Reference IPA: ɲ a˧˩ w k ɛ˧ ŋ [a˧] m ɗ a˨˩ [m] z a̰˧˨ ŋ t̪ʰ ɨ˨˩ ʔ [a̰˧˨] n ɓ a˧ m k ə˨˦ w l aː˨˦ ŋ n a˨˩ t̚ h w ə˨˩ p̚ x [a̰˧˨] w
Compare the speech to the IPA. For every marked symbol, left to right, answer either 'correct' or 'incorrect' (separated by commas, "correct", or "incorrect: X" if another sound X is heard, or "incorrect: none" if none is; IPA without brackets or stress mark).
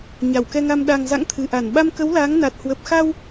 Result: correct, incorrect: ŋ, incorrect: a˧˩, incorrect: a˧